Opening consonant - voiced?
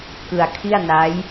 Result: no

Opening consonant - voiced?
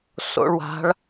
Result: no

